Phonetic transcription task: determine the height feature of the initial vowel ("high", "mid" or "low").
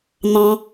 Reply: low